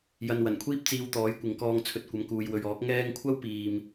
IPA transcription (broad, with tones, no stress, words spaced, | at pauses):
jɐ˨nwɐ˨˩n kʷʰiː˥p̚t͡siː˧w t̪ɔː˨˥jkʷɪ˨˧ŋ kɔː˧ŋt͡sʰɵ˨˥t̚kʷɐ˨˧m kuː˨jwɵ˨ɥɔː˨˥k̚ ŋɛː˧ŋ kʷʰɐ˥wpiː˨m